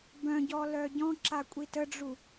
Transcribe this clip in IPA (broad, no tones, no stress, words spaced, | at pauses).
bœ̃ɟɔlœ ɟɔ̃ǁakʷʼi təɖ͡ʐu